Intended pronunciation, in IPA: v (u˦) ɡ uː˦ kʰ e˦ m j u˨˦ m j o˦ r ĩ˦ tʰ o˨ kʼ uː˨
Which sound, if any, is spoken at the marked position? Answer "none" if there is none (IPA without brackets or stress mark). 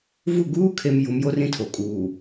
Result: u˦˨